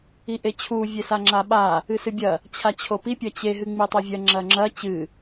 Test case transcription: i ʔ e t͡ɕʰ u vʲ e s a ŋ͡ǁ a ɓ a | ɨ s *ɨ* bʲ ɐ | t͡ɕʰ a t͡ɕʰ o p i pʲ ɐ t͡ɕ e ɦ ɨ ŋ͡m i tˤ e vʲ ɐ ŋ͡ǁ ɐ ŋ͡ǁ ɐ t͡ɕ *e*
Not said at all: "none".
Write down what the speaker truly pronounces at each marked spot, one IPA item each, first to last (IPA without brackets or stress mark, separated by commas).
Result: ɨ, ɨ